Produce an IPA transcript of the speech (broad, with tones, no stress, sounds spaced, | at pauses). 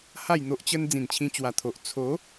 h a˥˧ j n̪ o˦ ʔ t͡ɕ ə˦ n d͡z ĩ˨˩ n t͡ɕʰ ĩ˧ t͡ɕ w a˨˩ t̪ʰ o˨ ʔ t͡sʰ o˨˦